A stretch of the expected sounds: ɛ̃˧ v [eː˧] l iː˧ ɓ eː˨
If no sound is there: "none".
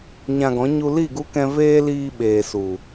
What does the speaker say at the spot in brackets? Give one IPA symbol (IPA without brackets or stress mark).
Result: eː˦